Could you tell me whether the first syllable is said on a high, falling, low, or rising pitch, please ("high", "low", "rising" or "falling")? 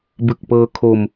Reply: low